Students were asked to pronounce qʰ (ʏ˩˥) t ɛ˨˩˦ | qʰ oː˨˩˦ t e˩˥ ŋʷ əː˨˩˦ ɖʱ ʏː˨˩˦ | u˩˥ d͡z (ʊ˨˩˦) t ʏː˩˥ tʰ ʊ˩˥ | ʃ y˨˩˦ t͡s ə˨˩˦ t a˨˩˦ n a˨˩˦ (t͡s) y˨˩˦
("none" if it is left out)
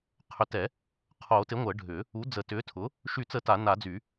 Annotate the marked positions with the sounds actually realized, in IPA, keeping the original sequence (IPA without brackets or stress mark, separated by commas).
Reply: ʏ˩˥, ə˨˩˦, d͡z